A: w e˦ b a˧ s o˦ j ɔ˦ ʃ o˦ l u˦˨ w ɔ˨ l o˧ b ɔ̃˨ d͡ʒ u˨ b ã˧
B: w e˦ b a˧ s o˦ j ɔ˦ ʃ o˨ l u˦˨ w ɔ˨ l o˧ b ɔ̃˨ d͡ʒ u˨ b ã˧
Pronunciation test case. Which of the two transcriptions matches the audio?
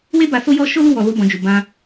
A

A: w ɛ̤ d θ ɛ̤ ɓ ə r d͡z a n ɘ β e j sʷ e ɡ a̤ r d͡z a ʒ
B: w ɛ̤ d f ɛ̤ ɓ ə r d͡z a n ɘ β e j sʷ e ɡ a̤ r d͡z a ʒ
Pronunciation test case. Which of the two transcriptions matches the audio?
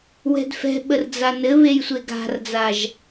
B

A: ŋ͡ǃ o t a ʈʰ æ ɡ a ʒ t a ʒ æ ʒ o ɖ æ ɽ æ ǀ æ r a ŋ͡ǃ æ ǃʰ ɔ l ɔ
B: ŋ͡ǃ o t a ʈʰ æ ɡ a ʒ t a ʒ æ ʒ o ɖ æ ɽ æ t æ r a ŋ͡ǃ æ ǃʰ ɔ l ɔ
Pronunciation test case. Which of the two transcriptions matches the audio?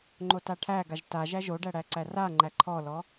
A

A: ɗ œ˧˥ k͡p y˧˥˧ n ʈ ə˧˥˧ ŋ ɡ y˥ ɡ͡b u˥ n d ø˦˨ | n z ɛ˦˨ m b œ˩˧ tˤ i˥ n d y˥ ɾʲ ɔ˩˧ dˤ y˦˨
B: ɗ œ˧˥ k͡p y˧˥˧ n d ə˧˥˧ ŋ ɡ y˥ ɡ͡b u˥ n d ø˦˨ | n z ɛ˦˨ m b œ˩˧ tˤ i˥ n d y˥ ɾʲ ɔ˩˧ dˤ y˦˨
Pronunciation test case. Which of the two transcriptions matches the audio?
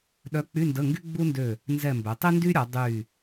B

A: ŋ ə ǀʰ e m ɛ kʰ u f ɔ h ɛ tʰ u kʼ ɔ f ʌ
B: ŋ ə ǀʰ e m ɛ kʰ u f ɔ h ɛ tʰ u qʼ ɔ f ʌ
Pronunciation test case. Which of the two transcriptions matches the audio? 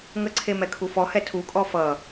A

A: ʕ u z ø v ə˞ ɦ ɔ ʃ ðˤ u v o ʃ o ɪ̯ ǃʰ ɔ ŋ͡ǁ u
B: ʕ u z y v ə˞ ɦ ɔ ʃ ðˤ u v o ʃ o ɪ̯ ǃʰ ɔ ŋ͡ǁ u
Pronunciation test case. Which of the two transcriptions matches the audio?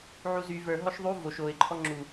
B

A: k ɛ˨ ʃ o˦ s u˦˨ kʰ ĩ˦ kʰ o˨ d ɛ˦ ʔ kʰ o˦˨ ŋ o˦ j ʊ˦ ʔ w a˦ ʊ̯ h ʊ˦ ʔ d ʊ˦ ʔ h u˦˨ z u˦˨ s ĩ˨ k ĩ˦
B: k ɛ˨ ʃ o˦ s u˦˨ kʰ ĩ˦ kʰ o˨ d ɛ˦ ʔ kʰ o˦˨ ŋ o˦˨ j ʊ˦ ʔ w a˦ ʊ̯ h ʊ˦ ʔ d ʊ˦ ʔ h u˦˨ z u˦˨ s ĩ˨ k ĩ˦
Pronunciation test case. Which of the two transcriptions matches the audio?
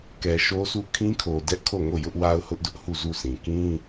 B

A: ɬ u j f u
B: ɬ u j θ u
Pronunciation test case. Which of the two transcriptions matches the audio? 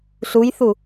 B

